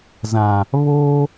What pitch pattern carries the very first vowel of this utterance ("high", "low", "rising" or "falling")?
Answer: low